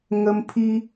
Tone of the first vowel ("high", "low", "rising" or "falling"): high